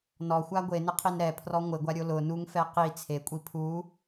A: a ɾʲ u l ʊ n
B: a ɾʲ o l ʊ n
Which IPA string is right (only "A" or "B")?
B